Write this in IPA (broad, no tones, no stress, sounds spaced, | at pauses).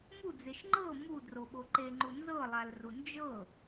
m u d͡z e ʃ ŋ͡ǃ ɤ m u d r o ɓ o ǃ e ŋ͡ǃ u n z ɤ lˠ a l r u n d͡ʒ ɤ